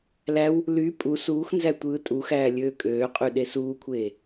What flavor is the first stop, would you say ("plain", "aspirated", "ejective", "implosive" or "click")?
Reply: ejective